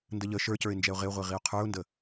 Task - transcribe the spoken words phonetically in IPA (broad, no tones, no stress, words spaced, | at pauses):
ndəʎə ʃə˞cə˞ɪ̯nd͡ʒɛʊ̯ ʁɪʊ̯ʁʷiʁiʊ̯ qʰə˞ʊ̯ndə